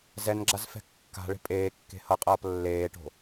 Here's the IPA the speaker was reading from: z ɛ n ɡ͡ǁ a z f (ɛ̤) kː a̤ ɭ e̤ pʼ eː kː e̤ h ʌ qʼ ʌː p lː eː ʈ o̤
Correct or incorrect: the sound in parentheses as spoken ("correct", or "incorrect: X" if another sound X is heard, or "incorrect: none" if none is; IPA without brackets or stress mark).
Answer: correct